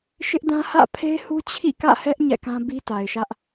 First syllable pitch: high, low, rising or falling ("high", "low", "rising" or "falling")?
high